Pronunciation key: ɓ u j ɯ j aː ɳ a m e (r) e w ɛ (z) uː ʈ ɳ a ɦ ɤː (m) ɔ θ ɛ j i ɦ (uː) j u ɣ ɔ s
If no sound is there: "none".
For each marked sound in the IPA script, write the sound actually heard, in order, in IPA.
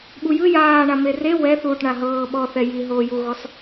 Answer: r, θ, ɓ, oː

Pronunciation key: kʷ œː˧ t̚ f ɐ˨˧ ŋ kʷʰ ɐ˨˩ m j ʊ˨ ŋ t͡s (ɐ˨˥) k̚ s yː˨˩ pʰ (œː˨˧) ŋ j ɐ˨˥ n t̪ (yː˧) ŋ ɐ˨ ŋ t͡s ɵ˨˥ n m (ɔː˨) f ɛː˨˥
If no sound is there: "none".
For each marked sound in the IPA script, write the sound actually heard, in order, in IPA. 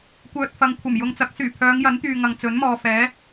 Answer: ɐ˨˥, œː˨˧, yː˨, ɔː˨

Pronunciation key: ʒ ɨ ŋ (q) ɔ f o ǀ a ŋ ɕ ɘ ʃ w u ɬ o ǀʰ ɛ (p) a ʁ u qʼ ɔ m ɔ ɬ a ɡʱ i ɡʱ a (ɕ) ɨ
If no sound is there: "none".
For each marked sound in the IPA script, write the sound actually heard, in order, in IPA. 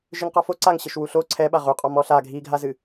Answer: q, ɓ, z

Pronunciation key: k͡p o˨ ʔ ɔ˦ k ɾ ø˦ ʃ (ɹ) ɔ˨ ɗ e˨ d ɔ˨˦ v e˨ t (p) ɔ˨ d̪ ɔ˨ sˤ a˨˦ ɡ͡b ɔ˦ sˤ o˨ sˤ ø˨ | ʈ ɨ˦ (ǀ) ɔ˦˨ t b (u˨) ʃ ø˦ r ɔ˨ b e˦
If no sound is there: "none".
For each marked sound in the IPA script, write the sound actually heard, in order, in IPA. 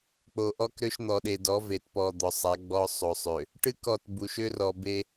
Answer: n̪, p, k, u˨

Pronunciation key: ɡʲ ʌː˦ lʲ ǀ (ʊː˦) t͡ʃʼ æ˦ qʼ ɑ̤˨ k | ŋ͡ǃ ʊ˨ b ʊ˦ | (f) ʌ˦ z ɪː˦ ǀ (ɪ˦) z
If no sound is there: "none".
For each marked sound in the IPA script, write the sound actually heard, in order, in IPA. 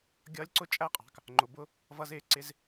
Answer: ʊ˦, v, ɪ˦

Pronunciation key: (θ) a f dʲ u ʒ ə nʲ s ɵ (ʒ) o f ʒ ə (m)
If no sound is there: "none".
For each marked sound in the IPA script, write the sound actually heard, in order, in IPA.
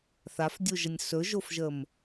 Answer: θ, ʒ, m

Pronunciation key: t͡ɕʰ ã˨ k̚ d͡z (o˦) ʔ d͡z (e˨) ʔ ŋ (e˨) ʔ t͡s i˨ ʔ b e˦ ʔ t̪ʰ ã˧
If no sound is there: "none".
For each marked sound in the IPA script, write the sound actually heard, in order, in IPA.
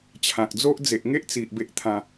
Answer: o˦, e˨, e˦

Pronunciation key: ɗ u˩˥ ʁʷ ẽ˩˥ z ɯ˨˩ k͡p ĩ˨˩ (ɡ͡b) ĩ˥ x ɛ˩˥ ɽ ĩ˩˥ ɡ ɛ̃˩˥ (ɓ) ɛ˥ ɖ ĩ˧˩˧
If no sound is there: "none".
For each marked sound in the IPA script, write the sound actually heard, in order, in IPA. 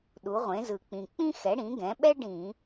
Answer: k͡p, ɓ

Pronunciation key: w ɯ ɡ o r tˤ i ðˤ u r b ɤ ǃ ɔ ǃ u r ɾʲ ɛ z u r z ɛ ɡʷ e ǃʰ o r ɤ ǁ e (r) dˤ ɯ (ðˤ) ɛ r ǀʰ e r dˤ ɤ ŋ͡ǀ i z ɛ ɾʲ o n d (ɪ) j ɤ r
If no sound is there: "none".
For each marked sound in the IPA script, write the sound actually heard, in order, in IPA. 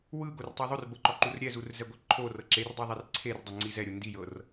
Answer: r, ðˤ, i

